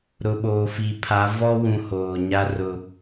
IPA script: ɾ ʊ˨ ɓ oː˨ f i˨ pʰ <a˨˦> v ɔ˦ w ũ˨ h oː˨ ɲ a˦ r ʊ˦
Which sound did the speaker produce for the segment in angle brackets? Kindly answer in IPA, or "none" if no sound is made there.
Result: a˨˦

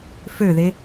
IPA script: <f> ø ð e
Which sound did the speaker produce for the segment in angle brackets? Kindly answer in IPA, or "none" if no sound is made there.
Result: f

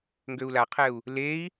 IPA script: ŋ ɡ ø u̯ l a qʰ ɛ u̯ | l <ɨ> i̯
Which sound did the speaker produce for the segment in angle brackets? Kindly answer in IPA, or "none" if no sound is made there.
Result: e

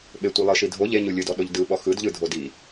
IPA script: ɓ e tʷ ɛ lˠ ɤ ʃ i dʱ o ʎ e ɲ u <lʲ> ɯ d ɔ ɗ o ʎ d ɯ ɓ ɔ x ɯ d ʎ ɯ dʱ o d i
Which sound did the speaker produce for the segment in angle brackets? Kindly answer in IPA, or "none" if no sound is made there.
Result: lʲ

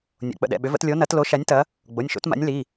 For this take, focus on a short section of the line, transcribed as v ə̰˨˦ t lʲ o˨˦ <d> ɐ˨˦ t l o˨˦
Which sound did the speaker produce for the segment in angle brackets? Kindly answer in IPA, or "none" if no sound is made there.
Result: n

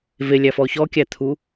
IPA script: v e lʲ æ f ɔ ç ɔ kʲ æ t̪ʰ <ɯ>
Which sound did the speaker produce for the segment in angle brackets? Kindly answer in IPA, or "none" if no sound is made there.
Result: u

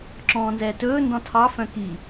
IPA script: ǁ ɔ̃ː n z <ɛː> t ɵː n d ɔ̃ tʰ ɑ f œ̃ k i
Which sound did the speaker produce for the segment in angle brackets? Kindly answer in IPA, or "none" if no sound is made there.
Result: ɛː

